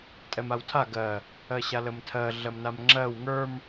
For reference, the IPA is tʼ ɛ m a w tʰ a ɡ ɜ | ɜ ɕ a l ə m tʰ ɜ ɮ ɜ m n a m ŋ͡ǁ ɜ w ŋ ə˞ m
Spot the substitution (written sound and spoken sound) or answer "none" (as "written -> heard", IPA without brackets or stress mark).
none